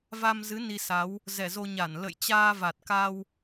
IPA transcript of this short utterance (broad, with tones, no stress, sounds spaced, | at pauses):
v a˧ m z ɨ˨˦ n i˧ s a˨˦ w | z ɛ˧˩ z o˧ ɲ a˧˩ n l ə̰˧˨ j t͡ɕ aː˧ v a˨˩ t̚ k a˧ w